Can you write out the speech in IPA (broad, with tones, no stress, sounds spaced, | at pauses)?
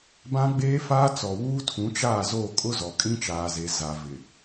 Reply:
b ã˦ ɡ͡b eː˦ f aː˦ t͡s ɔ˨ w uː˦ tʰ ũ˨˦ t͡ʃ aː˦˨ z o˦˨ kʼ ʊ˦ z ɔ˨ kʼ ĩ˦ t͡ʃ aː˨ z e˨ z a˨ v ɪ˨